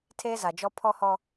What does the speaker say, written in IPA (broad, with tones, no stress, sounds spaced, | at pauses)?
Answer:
tʰ eː˦ z a˨ d͡ʒ ɔ˦ pʰ ɔ˦ h ɔ˦